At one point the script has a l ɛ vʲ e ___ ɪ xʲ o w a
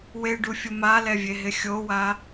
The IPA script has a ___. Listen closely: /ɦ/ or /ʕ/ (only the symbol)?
ɦ